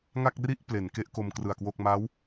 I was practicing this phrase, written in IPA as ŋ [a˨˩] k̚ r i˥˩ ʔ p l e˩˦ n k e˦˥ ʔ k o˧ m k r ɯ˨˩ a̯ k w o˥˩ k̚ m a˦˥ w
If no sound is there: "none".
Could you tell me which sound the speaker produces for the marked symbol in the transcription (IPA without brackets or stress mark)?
a˥˩